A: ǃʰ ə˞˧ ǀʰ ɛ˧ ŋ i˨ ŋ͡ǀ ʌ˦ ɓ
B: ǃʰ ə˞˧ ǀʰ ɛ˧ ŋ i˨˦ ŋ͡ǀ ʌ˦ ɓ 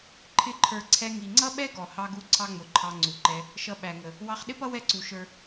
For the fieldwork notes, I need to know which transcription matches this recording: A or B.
A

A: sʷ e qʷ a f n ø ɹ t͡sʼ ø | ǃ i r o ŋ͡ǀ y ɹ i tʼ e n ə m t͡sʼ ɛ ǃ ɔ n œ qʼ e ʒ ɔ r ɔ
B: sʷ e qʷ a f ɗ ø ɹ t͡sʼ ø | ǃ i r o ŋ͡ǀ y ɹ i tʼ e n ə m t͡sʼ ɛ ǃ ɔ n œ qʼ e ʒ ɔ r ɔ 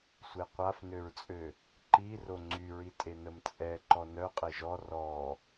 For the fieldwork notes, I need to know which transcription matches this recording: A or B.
A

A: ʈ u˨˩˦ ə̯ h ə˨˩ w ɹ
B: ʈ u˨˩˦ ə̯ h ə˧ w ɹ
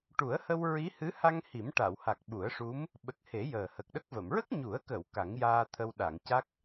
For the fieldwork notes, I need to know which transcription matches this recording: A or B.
B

